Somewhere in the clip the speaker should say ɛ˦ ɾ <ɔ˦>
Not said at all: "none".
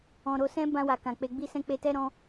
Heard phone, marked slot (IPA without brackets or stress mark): ɔ̃˦